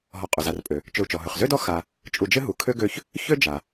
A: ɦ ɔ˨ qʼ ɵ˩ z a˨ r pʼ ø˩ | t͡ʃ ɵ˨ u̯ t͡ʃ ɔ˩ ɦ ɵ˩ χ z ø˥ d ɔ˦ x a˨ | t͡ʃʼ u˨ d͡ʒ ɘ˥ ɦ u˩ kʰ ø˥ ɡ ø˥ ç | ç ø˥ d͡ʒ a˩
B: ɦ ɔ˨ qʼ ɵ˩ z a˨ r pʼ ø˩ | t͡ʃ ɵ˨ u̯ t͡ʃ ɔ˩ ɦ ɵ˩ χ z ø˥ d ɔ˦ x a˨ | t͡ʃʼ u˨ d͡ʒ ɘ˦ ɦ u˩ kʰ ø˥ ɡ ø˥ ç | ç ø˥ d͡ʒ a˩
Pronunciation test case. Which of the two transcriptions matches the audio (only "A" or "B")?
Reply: A